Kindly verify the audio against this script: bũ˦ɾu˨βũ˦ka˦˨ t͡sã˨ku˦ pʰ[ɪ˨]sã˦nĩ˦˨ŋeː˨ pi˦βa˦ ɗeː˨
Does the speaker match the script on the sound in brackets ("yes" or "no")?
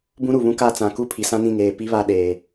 no